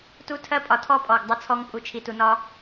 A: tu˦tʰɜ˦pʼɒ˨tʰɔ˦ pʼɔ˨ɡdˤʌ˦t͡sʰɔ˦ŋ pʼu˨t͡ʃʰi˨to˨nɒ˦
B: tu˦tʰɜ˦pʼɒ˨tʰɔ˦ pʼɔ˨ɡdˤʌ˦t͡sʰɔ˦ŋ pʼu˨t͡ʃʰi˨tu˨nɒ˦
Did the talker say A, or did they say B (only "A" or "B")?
B